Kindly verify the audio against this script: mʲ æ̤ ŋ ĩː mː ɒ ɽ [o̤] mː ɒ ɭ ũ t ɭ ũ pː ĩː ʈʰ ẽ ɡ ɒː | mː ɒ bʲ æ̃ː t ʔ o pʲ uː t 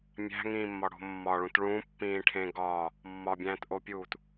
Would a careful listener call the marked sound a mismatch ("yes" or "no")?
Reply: no